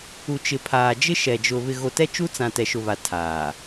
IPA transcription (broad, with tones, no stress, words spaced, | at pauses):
u˨t͡ʃɪ˨pʰaː˨ d͡ʒɪ˦ʃɛ˨d͡ʒʊ˨ βɪ˨ɣo˨ tɛ˦t͡ʃu˦t͡sã˨ tɛ˨ʃʊ˨βa˨ tʰaː˨